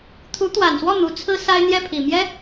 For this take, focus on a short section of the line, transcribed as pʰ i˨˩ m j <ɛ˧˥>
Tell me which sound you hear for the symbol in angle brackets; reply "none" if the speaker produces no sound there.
ɛ˥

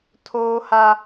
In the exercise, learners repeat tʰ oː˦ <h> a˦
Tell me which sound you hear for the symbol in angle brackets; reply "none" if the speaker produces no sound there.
h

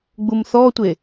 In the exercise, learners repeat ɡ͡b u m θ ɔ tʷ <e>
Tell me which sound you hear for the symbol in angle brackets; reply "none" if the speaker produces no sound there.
e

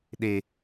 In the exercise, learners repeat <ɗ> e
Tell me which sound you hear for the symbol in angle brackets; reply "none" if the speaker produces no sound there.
ɗ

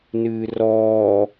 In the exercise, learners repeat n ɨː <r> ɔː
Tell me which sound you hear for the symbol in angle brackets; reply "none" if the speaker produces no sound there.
r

